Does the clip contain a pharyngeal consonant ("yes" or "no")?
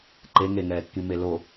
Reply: no